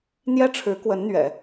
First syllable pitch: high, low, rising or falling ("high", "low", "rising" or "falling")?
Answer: high